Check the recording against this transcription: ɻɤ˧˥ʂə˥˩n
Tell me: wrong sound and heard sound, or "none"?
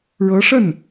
none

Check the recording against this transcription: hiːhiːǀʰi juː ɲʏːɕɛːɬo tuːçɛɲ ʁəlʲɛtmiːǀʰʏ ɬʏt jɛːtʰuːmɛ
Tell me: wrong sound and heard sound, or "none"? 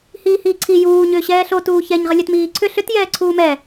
tʰ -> ǀʰ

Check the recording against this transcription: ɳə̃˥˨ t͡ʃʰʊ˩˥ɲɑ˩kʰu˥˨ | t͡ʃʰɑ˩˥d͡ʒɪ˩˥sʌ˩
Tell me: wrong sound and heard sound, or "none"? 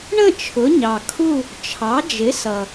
none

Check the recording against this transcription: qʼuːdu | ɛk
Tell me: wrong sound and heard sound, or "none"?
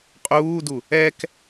none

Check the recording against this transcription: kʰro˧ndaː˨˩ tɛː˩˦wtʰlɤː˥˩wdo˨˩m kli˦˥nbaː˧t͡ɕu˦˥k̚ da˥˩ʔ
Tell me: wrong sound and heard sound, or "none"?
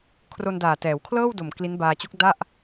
tʰ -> kʰ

